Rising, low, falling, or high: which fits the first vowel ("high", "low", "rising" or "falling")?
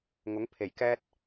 rising